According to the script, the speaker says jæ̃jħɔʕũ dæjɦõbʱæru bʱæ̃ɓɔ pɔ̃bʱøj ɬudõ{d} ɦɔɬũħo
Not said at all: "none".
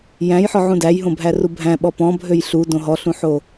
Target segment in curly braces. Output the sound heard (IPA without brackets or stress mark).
none